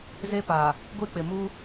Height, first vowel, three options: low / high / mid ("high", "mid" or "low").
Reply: mid